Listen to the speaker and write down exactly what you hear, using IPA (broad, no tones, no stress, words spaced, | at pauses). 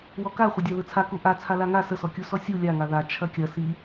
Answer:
wɔka χʷədʲaðɯt͡sʰa kuʔa t͡sʰalaŋa səsɔkʲu sɔsʲu lʲaŋa ða t͡ʃʰɐkʲɐ si